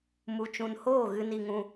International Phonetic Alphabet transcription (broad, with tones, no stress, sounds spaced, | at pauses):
m u˨ t͡ʃ ũ˨ n h oː˦˨ ɣ ɨ˧ n i˧ ŋ ũ˧